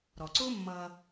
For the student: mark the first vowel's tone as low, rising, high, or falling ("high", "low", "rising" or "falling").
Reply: low